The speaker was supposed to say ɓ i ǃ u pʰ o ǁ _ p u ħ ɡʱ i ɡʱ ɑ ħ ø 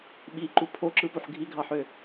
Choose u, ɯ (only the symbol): ɯ